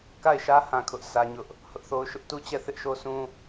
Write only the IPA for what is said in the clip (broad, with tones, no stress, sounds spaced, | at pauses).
k a˦˨ ɪ̯ ʃ ä˦ h ã˨ kʰ ʊ˦ ʔ s ä˦ ɲ ʊ˦ ʔ | h ʊ˦ ʔ θ o˦ ʊ̯ ʃ ʊ˦ ʔ t u˦ t͡ɕ ɛ˦˨ θ ɪ˦ ʔ ʃ o˦ s ũ˦